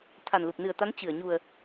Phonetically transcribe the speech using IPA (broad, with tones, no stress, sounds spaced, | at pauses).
t̪ʰ a˨˩ n l u˨˩ p̚ n ɨ˨˩ ə̯ t̪ a˨˦ n t͡ɕ ɨ˧˩ ə̯ ɲ u˨˩ ə̯